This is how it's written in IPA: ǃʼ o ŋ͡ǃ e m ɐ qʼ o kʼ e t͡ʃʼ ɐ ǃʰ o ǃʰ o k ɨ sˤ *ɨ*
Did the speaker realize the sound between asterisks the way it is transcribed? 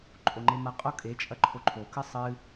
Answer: yes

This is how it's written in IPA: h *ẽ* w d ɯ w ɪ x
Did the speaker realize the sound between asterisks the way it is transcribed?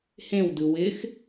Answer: yes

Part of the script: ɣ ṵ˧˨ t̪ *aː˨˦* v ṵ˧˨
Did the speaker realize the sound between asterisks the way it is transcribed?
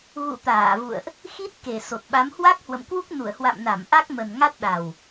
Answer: no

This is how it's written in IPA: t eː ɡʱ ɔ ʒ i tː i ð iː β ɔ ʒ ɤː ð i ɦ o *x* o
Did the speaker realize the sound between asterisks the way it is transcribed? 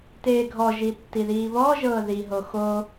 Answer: yes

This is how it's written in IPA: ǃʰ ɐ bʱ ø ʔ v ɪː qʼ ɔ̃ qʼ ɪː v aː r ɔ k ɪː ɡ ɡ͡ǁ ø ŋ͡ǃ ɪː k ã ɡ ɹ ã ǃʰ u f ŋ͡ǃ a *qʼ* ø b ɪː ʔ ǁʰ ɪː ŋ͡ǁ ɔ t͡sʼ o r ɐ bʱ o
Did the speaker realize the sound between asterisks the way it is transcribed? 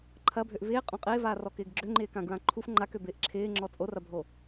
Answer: no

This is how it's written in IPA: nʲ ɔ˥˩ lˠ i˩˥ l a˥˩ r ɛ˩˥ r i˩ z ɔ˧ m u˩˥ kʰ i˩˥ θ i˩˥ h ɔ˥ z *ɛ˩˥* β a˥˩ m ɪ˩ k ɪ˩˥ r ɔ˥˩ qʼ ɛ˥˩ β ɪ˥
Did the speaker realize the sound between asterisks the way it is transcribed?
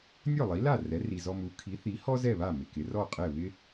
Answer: no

